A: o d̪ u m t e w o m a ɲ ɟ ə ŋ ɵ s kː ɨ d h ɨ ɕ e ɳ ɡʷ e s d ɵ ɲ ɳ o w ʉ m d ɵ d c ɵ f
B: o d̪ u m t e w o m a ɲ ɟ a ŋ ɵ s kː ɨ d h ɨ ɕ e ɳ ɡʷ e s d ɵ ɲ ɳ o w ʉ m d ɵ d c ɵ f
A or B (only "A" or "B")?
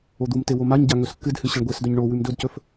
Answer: B